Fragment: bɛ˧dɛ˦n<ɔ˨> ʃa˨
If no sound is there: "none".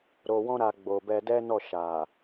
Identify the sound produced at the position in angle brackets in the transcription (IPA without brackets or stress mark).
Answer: ɔ˦˨